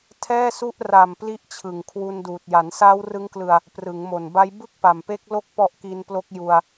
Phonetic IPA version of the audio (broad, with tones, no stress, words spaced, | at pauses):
tʰɛː˥˩su˥˩ʔ ra˨˩m pli˦˥ʔt͡ɕʰɯ˨˩ŋkʰwu˧n duː˨˩t̚ ja˩˦nsaː˦˥wrɯ˦˥ŋklɯ˧a̯ | prɯ˩˦ŋmo˨˩nba˦˥j bɯ˥˩k̚pa˨˩mpe˦˥k̚ lo˥˩k̚pɔ˦˥ʔki˧nplo˦˥k̚ ju˧a̯